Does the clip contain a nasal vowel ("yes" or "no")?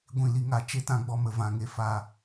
yes